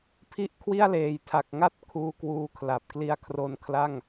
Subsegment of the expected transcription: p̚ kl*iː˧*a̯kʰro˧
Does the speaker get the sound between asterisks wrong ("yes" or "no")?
yes